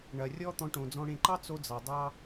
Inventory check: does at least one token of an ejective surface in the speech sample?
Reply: no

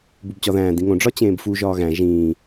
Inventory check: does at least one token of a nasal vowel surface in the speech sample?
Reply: yes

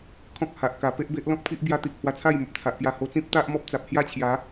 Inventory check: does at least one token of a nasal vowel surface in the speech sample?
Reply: yes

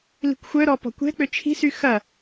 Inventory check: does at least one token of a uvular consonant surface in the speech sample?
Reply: no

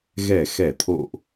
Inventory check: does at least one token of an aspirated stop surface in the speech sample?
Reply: yes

